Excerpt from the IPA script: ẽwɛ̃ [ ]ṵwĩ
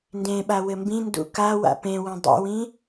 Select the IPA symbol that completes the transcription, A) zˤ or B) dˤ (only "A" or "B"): B